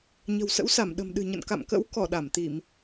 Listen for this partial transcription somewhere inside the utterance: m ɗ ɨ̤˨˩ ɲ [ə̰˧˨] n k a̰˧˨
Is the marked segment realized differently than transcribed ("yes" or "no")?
no